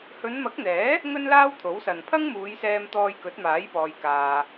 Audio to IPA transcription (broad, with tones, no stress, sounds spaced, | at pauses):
h ɵ˨˧ n m ɐ˨˥ k̚ n̪ ɛː˨˥ | ŋ ɵ˥ n l aː˥ w t̪ʰ o˨˥ w s ɐ˨ n pʰ ɐ˥ ŋ m uː˨˧ j s ɛː˧ m t̪ ɔː˧ j k ɵ˨˥ t̚ m aː˨˥ j p ɔː˧ j k aː˧